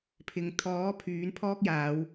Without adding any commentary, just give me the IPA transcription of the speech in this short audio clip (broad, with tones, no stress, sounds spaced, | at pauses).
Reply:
pʰ ɪ˨˧ ŋ t̪ʰ ɔː˨˥ pʰ yː˨˥ n pʰ ɔː˥ k̚ j aː˨˧ w